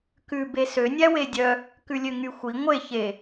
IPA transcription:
k ʉ b e s ø nʲ æ w e dʲ œ | k ʉ lʲ ø ŋ y xʷ i ŋʷ e ç e

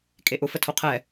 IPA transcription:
kʼ e ʔ ʊ f ə tʰ o qʰ ɛ

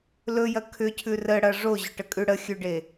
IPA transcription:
l ɵ j ɐ kʰ ʏ cʰ ʉ r ə ɽ ɐ ʐ o ʑ ʏ ʈ ə kʼ ʉ ɽ ə xʲ ʉ ɖ e

